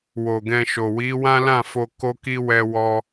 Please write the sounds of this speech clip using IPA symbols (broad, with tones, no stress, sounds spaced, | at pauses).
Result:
w o˨ ɡ ɛ̃˧ ʃ o˨ w i˨˦ w ã˦ l ã˦˨ f o˧ k o˦ k i˦ w ɛ˦ w ɔ˦